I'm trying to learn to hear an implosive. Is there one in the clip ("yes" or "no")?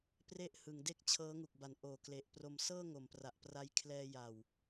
no